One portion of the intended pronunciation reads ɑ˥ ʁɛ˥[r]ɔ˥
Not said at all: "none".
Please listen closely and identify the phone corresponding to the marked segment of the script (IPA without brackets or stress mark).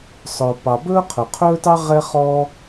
χ